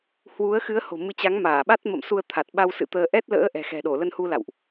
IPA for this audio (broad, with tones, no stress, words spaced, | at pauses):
hwu˨˦ə̯ xɨ˨˦ə̯ho̤˨˩ mɨ˨˦t͡ɕa˨˦ŋmaː˧˩ɓa˦˥t̚ mə̰˧˨m su˧ə̯t̪ʰa˨˩t̚ɓa˧w sɨ̰˧˨t̪əː˧ ʔɛ˦˥t̚lə̰ː˧˥ ʔɛ̤˨˩xɛ̤˨˩ɗo˧˩ lə˧nhu˧la̰˧˨wʔ